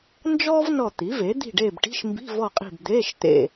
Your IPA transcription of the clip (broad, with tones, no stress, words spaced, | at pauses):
nd͡ʒɔː˥v nɔ˦˨t̪i˩˥ve˩˥ d̪i̤˦˨ɖeː˦˨bʈi̤˧˥˧ʃmbi̤˧˥˧ vɔ˦˨qʼi̤˦˨bd̪eː˧˥˧ʃ t̪ḛ˦˨